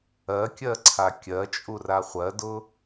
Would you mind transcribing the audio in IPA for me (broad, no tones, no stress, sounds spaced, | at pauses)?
ɜ kʲ ɜ ǀʰ a kʲ ɜ t͡ʃʼ u r a χʷ ɜ d ʊ